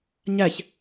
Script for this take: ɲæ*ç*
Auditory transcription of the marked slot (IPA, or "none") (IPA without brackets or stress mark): ç